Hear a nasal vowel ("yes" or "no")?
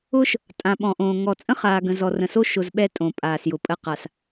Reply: yes